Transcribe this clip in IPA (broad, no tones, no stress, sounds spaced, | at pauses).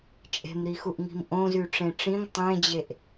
t͡ʃʼ e̤ m ɾ i x u ʔ ŋ i̤ m ʔ õ z y ʈ͡ʂ ẽ ʈ͡ʂ ĩ ŋ tˤ ẽ d͡ʑ e ʔ